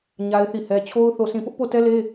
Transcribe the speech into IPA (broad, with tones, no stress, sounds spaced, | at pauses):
ɲ a˦ ɪ̯ θ i˦˨ h ɛ˦ t͡ɕʰ o˦ ʊ̯ θ o˦˨ s ĩ˦˨ p ʊ˦ ʔ p o˦˨ t ɛ˦ l e˦